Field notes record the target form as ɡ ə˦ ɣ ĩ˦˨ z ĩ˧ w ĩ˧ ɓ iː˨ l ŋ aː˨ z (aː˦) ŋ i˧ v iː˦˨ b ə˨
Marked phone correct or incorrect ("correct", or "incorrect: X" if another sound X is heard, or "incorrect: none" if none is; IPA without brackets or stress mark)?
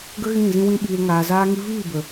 incorrect: aː˧